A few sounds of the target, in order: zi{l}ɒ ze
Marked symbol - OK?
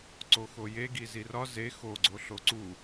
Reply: no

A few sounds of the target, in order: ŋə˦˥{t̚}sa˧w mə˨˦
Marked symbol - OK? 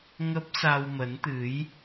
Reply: no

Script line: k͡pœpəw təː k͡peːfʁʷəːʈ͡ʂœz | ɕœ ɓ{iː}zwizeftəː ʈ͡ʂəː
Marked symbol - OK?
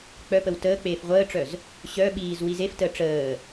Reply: yes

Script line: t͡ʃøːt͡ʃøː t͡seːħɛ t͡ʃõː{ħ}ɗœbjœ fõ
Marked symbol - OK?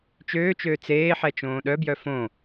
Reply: no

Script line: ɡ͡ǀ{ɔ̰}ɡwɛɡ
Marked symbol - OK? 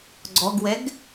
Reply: no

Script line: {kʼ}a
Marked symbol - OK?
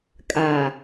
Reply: yes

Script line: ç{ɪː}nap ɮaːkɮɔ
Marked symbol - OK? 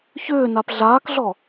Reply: no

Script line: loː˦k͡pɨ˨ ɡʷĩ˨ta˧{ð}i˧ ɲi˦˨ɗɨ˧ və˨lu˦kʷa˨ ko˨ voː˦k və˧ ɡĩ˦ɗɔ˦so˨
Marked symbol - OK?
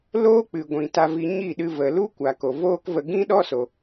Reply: no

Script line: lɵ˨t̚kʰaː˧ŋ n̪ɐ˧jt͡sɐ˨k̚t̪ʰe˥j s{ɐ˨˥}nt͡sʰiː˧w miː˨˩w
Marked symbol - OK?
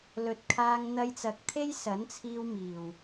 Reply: yes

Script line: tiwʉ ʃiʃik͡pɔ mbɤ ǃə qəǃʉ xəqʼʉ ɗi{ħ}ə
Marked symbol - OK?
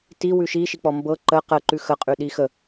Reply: no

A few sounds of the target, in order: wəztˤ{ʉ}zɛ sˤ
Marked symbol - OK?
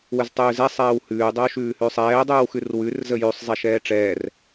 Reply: no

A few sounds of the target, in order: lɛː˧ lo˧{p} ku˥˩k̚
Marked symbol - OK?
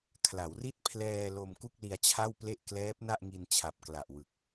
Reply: no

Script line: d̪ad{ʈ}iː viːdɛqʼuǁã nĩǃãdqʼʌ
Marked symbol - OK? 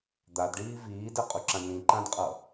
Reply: no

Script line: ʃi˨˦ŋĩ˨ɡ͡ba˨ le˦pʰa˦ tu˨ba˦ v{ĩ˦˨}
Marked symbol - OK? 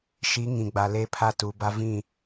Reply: yes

